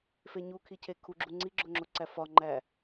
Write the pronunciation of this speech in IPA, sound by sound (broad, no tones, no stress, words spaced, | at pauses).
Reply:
feɲukʰicʰe kʰuɡ͡ǁu ŋ͡ǀiɡ͡ǁoŋ͡ǁoǀæ fɒŋ͡ǃæ